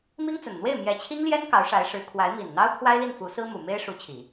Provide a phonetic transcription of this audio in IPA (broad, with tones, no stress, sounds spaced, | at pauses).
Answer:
m i˥ ŋ t͡s ə˨˩ n n̪ w e˥˩ ɪ̯ m j ɛ˧˥ t͡ɕʰ i˥ ŋ l j ɛ˥ n k ɑ˧˥ ʊ̯ ʂ a˧˥ ɪ̯ ʂ ɻ̩˧˥ kʰ w a˧˥ ɪ̯ m i˨˩ n n̪ ɑ˥ ʊ̯ kʰ w a˥ ɪ̯ l i˥˩ n f u˧˥ s ɹ̩˥ m u˨˩ m e˥ ɪ̯ ʂ u˧˥ t͡ɕʰ i˨˩˦